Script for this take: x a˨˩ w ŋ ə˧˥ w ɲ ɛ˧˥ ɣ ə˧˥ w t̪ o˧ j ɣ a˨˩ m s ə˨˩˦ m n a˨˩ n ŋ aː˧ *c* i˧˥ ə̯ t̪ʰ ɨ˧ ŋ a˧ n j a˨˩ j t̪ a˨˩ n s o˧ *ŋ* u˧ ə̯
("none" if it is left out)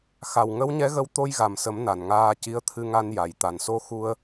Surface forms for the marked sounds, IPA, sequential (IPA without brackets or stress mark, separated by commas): c, x